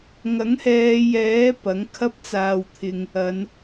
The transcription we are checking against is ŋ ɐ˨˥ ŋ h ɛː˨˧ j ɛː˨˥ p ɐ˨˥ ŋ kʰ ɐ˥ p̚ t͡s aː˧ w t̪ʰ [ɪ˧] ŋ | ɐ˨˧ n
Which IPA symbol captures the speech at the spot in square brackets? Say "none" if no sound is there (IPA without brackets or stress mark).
ɪ˧